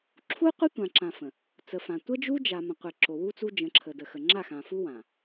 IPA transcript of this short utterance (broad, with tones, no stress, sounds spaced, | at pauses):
ǁʰ u˦ qʷ ɘ˦ tʷ ã˨ ǁ ã˨ f ə̃˨ | t͡s ə˨ f ã˨ tʷ ə˦ d͡ʒ u˦ d͡ʒ a˨ m ə̃˨ qʷ e˨ ǁ o˨ w u˦ t͡s u˦ d͡ʒ ə̃˨˦ ǁʰ ə˨ d ə˨ x ə˨ ŋ͡ǁ a˦˨ x ã˨ f u˦ w ã˨